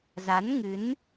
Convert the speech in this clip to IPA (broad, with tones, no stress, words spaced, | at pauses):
za˨˦n ŋɨ˨˦n